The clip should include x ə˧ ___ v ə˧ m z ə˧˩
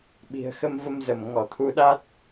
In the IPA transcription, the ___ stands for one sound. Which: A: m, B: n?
A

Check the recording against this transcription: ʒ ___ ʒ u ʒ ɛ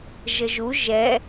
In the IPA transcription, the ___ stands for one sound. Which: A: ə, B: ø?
A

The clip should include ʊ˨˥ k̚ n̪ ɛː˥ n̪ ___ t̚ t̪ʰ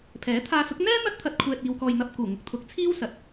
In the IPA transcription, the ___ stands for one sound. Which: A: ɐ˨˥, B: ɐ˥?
B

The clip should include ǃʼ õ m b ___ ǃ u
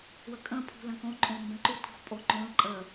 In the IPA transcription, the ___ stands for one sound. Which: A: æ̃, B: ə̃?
B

